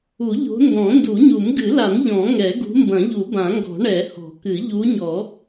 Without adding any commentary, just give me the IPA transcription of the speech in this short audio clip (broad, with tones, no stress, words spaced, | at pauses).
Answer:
u˨˩˦ʎo̤˨˦ndɔ̃˨˩˦ ndu˨˩˦ɲu˨˩˦mɡɨ˨˩˦la˨˩˦n ʎɔ̃˨˩˦ŋɛ˨˩˦ɡṳ˨˦ mbɐ̃˨˩˦ʎu˨˩˦bã˨˩˦ŋɡɔ̤˨˩˦ ɳɛ˨˩˦hɔ̤˨˩˦kɨ˨˩˦ ʎu˨˦ɲɔ˨˩˦